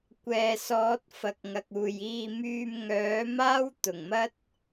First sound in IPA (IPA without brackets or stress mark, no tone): kʷ